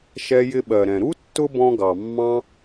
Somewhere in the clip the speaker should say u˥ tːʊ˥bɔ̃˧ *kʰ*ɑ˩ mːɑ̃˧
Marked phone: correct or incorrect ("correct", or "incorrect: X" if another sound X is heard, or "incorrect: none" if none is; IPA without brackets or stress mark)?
incorrect: ɡ